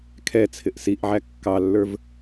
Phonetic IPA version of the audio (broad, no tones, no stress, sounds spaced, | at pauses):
kʰ ɛ t͡sʰ ɪ ʔ s i ʔ ʕ æ kː ɑ lː ə˞ v